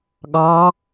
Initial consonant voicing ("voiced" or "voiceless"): voiced